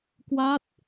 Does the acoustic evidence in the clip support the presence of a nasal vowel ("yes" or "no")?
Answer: no